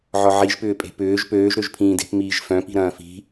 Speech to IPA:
ʕɔʕiʒpʏːpʼe̤ pʏːʒ pøːʒɾøʒ pʰĩːde̤p miːʒfœ̃pi̤ ɾɐ̃ːfi̤

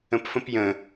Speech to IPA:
ə̃pfə̃pjə̃

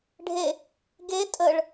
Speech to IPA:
ɖʱe | ɡe tʼəɭ

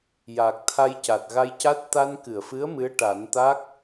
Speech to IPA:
jaː˨˩k̚t̪ʰa˧j ca˨˩t̚ɣa˧jca˦˥t̚ t̪a˧nkɨ˨˩˨ə̯fɨ˧˥ə̯ mɨ˧˥ə̯ʈa˨˩˦nt̪a˦˥k̚

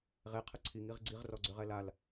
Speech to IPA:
ʁe qʰəǀʰiŋ iʁɡ͡ǀiʁ rɔɡ͡ǀøʁɛlal

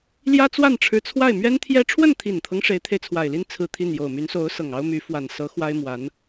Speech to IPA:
ljä˥t͡swa˥˩nʈ͡ʂʰɻ̩˧˥ t͡sʰwa˥˩ɪ̯mɥɛ˥nt̪ʰjɛ˥ ʈ͡ʂʰwə˥˩nt̪ʰi˨˩nt̪ʰɤ˦ŋ ʂe˧˥ɪ̯t̪ʰe˧ɪ̯t͡sʰwa˨˩ɪ̯li˥˧n t͡sʰɹ̩˥˧t̪ʰi˥˩n jo˨˩ʊ̯my˧˥nso˧˥ʊ̯ sɤ˨˩ŋɑ˥ʊ̯my˧˥ fwa˨˩nsɤ˧˥ xwa˥ɪ̯mwa˧˥n

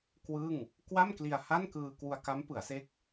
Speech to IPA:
kwɯ˥˩ŋ | kwa˥˩mkli˧a̯ ha˥˩nkɯː˧ kwu˧a̯ka˦˥mpɯ˩˦a̯se˦˥k̚

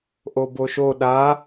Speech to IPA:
ʔoboʃo ɗa

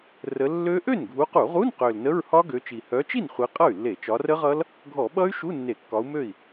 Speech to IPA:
rə˨˦ lːø˦˥ ʔø˥˩nɡʱu˨˦qu˧˩˧ʁu˧˥˧n qø˨˩lnə˧˥˧ɹ hɒ˦˥ ɡø˨˦t͡ʃi˨˩ hœ˨˦t͡ʃi˥˩n χʷi˨˦qʼʌ˥˩y̯lːe˧˩˧ t͡ʃɒ˨˦rə˦˥ʁʌ˦˥l | ɡʱɔ˧˩˧ɓʌ˦˥y̯ʃu˧˥˧ nːe˧˩˧kːɒ˨˦u̯mø˥˩i̯

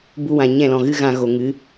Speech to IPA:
bu˧wã˨ ɲɛ̃˦˨lɔ̃˨ɣɨ˦ ɣã˧ɣo˨ŋɨ˨˦

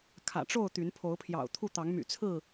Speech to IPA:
kʰä̰˨˩ʈ͡ʂo˥˨ʊ̯ t̪y˨˦npʰo˨˦ʊ̯pʰjɑ̰˨˩ʊ̯t̪ʰu˥˨ t̪ɑ˨˦ŋmy̰˨˩t͡sʰɹ̩˥˨

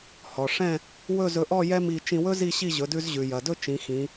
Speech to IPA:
hɔ˩ʂɛ̃˥˧ | wɵ˥˧zɵ˧ʔɔ˥˧ jɛ˥mi˧ t͡ʃĩ˧wɵ˥ zi˥˧ɕi˥˧ʑɵ˩˧ dʉ˧zʑʉ˩jɐ˩dɵ˥˧ t͡ʃĩ˩˧xĩ˩˧

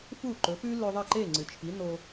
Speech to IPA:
fu˥˩ǃɵ˩˥pʉ˥ lɵ˧ðˤɐ˥˩ǃe˥˩ ŋ͡ǀɨ˩t͡ʃʰi˩˥no˧

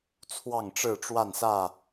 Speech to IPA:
t͡sʰwɑ˥˨ŋʈ͡ʂɻ̩˥˨ ʈ͡ʂwa˥˨nsä˥˨

